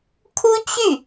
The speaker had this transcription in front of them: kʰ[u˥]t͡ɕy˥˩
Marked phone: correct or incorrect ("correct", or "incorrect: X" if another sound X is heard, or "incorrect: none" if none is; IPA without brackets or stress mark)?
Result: correct